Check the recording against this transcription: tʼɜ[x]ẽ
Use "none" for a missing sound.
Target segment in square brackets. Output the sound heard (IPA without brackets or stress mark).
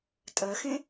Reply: x